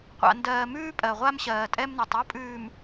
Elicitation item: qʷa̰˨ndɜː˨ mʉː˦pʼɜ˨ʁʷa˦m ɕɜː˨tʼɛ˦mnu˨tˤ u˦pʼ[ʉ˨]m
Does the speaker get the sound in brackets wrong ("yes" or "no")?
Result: yes